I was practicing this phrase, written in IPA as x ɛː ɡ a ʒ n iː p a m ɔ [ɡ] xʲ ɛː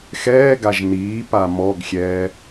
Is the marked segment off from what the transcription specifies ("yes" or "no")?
no